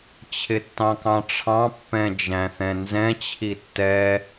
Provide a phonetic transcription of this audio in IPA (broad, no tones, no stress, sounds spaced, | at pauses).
t͡ɕʰ ɪ tː ɑ̃ k ɑ̃ ʈ͡ʂʰ ɑ̃ pː ɛ̃ d͡ʒ æ̃ θ ɛ̃ n z ɛ̃ t͡ɕʰ i tː ɛ